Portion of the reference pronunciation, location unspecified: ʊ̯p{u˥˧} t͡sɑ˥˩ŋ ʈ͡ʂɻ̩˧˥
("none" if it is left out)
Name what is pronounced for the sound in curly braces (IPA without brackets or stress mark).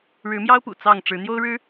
ṵ˨˩